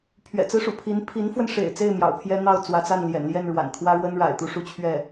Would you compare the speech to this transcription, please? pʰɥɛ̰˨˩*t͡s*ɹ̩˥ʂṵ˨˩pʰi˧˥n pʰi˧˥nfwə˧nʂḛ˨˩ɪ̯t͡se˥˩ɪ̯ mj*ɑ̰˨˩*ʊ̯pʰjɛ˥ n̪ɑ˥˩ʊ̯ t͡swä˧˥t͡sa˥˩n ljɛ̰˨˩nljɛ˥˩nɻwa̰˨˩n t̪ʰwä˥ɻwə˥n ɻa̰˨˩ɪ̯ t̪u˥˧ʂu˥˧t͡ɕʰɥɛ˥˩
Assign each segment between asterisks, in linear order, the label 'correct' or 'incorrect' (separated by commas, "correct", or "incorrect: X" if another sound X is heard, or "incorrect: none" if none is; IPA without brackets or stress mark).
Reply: correct, correct